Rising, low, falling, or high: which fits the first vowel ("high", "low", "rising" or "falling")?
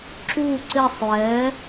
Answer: falling